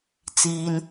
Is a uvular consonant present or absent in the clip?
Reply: absent